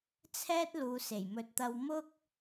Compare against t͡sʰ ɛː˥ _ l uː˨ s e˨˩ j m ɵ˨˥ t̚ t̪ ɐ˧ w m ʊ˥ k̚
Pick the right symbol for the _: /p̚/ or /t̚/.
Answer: t̚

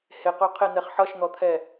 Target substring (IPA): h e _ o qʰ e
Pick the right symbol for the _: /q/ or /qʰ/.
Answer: q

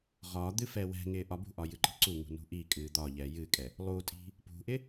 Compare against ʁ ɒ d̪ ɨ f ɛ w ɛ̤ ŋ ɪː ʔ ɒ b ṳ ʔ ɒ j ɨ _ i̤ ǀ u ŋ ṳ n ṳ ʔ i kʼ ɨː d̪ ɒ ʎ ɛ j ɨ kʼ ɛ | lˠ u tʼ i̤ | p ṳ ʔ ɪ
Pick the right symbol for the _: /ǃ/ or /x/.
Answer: ǃ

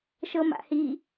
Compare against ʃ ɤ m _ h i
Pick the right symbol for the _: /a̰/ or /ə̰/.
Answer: a̰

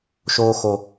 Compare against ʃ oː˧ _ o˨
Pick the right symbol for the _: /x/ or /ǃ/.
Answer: x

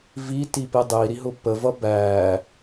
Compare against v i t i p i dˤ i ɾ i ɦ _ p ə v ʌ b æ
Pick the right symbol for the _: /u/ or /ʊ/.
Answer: ʊ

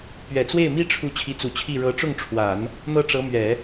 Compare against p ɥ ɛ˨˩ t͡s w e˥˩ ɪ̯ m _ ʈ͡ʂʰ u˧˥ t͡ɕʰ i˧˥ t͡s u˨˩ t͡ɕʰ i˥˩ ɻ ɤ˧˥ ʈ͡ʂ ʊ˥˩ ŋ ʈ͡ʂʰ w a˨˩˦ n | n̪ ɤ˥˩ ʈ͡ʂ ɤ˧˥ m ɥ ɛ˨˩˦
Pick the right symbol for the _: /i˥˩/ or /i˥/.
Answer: i˥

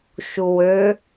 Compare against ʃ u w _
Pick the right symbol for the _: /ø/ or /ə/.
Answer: ø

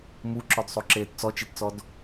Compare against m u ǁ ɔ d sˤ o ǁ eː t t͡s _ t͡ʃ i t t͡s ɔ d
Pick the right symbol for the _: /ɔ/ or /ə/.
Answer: ɔ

